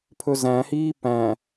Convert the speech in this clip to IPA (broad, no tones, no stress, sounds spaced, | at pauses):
pʰ ɵ z æ̃ h iː p æ̃